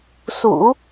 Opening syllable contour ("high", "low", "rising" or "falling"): low